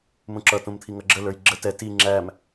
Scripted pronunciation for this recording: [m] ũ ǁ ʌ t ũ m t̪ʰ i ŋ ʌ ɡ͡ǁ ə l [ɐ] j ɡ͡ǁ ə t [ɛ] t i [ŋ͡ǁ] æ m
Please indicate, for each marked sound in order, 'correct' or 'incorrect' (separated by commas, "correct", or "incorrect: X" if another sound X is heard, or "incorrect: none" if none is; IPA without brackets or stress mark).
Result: correct, incorrect: ə˞, correct, correct